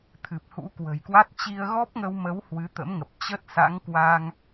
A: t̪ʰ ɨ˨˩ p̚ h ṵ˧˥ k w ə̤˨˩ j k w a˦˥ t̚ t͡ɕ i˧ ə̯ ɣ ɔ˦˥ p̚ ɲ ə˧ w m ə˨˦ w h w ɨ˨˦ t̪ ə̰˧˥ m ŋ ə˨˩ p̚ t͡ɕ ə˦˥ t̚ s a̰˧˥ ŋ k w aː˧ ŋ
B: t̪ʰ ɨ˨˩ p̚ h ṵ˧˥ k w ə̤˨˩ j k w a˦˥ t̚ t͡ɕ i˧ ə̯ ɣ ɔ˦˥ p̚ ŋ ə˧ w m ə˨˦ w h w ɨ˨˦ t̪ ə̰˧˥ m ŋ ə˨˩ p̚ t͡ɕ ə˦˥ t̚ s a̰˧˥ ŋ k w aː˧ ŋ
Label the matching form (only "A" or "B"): B